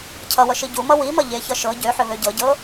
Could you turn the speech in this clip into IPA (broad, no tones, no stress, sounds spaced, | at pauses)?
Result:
cʰ ʌ w ʌ ʃ i ɟ u m ʌ w i m ʌ ʎ e ç ʌ ʃ ɤ ɟ ø ħ ʏ β ø ɟ ɤ ɟ ɤ